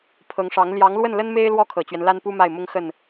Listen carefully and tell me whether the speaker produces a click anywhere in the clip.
no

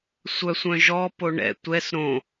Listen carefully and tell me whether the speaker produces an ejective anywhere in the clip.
no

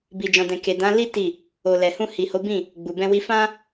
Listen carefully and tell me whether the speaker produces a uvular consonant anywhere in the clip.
no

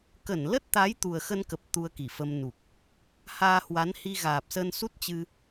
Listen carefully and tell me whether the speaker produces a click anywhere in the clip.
no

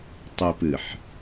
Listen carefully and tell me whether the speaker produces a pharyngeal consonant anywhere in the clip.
yes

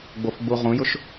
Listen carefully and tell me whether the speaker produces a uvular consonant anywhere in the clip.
yes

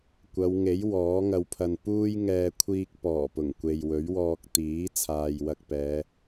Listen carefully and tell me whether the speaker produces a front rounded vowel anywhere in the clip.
no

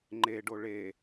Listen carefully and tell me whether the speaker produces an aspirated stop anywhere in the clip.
no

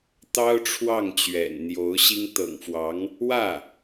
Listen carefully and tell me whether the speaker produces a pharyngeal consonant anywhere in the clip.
no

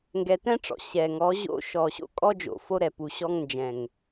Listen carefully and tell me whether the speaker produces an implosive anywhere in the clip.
no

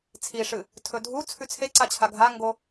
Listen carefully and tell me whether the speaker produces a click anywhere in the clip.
yes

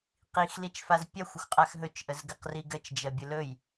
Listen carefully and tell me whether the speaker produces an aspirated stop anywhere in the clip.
no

